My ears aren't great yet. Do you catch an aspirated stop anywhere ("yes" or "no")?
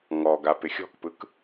no